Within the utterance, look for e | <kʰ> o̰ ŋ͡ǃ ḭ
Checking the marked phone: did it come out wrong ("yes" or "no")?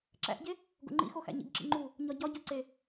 yes